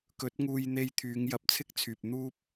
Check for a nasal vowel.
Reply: absent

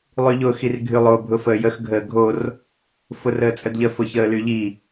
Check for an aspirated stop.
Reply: absent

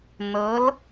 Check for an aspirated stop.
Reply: absent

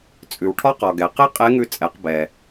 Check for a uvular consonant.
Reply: present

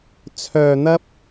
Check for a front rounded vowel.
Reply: present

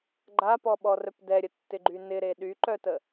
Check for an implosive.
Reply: present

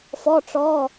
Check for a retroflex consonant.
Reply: present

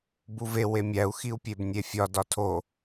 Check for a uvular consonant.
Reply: absent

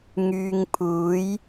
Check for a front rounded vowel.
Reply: present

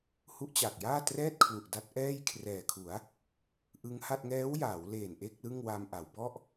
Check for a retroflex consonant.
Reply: absent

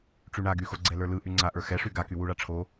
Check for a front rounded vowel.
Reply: present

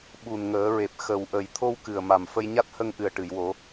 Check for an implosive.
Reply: present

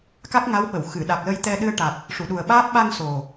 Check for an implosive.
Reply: present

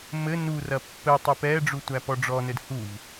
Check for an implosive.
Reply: absent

